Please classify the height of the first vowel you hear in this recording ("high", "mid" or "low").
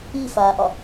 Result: high